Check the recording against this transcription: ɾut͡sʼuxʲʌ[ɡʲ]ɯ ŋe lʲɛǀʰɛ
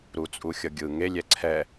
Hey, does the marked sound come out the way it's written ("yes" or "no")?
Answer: yes